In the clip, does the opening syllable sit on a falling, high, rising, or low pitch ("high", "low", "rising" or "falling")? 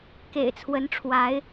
low